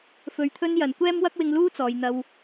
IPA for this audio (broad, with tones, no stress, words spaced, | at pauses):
fɵ˨ɥt̪ʰɵ˥njɐ˨˩n kʷɛː˥mwɐ˥k̚wɪ˧ŋluː˥ t͡sɔː˨jn̪ɐ˧w